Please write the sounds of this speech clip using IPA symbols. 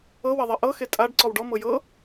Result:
ɤ wɐðˤɐʔɤ xetʼaɖ ǀɔwɖɔ mɤjɤ

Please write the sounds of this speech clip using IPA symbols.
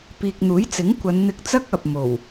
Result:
piː˨k̚n̪uː˨˥jt͡sɪ˨˥ŋ kʷɐ˨˧n n̪ɪ˧k̚t͡sɐ˥k̚ ɐ˨p̚mo˨˩w

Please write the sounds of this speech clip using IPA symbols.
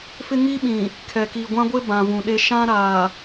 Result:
fɪ˦ŋi˦ɓĩ˨ | kʰɛ˨ki˨ɡʷã˦ɡʷɪ˦ bã˨vũ˨ɗe˦ ʃã˦ɾaː˨

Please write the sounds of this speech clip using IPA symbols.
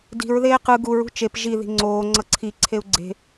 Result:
di̤ɹ ðeːqɯ ɡuɹ ṳt͡ʃep ʒi ði̤ŋ͡ǀoː ŋ͡ǀʌǀʰi ǀʰeu̯ɡ͡ǀe̤

